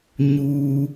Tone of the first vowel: low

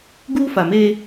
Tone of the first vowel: high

